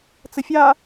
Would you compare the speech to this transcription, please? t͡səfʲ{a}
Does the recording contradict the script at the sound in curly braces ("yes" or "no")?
no